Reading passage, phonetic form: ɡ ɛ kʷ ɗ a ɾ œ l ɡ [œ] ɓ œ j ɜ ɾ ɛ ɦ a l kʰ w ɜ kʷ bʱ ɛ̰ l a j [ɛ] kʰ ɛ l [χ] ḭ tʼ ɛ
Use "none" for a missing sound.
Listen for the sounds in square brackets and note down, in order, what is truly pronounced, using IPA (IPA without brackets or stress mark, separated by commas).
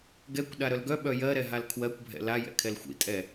œ, ɛ̰, xʷ